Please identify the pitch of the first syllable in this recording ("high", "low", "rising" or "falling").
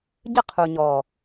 high